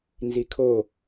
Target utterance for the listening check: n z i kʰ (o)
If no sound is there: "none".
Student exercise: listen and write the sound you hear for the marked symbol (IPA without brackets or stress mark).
o